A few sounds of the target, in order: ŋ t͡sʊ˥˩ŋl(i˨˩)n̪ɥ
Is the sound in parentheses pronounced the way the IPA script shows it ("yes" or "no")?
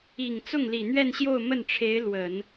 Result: yes